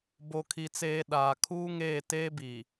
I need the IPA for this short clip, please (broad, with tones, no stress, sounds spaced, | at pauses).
b o˨ kʰ i˨ t͡s eː˨ ɗ aː˨ kʰ uː˦ ŋ eː˦˨ t eː˦ b i˨